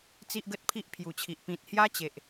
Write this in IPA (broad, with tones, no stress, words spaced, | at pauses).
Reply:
t͡si˦ʔɡə˦t̚pʰi˦ʔ pʰju˨˩t͡ɕʰi˨ʔ pĩ˨t̚hja˦t͡ɕe˨ʔ